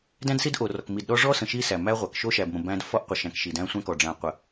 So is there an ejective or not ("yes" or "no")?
no